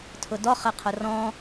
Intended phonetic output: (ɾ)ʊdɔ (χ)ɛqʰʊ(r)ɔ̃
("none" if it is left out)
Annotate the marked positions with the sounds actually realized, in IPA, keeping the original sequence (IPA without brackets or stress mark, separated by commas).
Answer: tʰ, χ, r